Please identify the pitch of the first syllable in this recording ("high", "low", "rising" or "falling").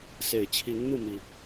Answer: low